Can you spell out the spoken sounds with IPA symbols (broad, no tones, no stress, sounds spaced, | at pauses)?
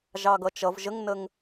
ʒ ɑ ɡ ʌ t͡ʃ ʌ v ʒ ə ŋ n ə ŋ